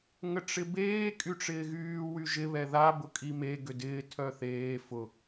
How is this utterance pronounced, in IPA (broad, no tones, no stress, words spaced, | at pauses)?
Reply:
ŋəʈ͡ʂɪbeː kʼyʈ͡ʂɪːɣyː wyʒɪ βɛða bʊkʼime ɡʏdɪː tʰœθeː fʊ